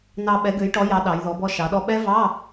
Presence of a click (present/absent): absent